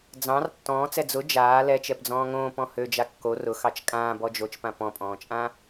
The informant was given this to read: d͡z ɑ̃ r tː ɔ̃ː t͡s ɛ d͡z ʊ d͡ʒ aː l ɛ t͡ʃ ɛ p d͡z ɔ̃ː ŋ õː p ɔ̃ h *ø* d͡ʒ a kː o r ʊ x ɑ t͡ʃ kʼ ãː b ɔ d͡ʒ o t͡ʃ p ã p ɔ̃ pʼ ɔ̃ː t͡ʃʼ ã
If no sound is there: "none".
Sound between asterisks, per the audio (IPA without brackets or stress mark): ø